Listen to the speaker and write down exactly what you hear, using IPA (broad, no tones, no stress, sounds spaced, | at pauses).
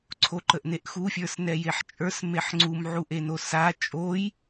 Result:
ǀʰ o ǃ ə ʔ n e ʔ x u fʲ ə˞ s n ɛ j e ħ t͡ʃʼ ə˞ s m e ħ ŋ͡ǀ u m ʕ u ʔ e n o s a t͡ʃʼ o j